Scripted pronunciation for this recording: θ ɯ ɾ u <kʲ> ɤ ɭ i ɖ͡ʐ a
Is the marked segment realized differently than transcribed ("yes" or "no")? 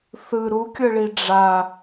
no